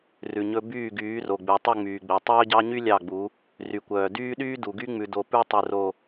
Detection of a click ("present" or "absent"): absent